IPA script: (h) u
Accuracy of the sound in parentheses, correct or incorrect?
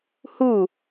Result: correct